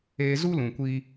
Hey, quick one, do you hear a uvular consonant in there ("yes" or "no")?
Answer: no